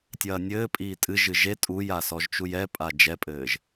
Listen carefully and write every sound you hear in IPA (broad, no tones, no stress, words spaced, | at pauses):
tʲɐːnʲɘːpʼiː tʼɨʒɨ ʒe tʼuja sɔʒt͡ʃujɛpʼa d͡ʒɛpʼɘːʒ